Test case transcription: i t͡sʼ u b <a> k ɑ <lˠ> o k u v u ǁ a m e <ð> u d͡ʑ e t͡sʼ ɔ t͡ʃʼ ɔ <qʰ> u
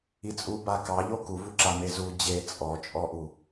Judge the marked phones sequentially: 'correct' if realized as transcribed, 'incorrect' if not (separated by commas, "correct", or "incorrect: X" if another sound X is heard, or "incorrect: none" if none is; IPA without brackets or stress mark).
correct, incorrect: ʎ, incorrect: z, incorrect: ʔ